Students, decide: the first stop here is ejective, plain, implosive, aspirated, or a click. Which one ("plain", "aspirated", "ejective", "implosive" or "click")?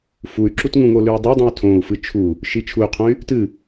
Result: click